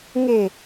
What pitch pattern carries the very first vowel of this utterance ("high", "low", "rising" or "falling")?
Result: low